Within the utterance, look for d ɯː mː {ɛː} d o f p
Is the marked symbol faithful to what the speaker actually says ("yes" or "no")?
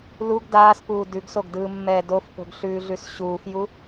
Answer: yes